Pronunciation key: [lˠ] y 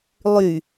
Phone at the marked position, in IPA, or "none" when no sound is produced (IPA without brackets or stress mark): lˠ